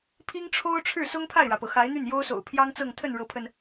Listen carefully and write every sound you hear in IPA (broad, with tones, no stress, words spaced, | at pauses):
pʰi˥ŋʈ͡ʂʰo˥ʊ̯ʈ͡ʂʰɻ̩˥˩ sʊ˥ŋpʰa˥˩ɪ̯ɻä˩pɤ˩ xa˧˥ɪ̯n̪y˥˩n jo˥ʊ̯so̰˨˩ʊ̯pʰjɑ˥ŋt͡sɤ˥˧ŋ t̪ʰə˥˩nɻɤ˧˥pʰə˧n